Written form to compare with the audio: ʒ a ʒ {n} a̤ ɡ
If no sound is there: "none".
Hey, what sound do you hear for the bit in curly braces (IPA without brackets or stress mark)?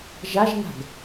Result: n